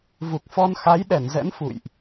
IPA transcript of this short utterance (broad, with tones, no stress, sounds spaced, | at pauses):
v u˨˩ k̚ f ɔ˧ n x a˨˦ j ɗ ɛ˧˩ n z ɛ̰˧˥ n f ṵ˧˨ j ʔ